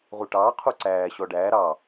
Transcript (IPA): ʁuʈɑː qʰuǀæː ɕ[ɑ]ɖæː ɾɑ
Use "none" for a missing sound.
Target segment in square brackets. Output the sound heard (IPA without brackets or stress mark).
ɔ